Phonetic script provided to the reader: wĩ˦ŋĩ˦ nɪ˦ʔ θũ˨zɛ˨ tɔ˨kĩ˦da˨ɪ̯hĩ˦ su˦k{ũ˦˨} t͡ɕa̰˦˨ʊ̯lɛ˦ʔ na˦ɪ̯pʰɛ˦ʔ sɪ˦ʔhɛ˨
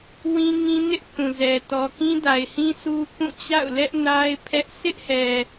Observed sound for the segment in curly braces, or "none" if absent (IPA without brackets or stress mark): ũ˦˨